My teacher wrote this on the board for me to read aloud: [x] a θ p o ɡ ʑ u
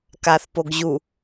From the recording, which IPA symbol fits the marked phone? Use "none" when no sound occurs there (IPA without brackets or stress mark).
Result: k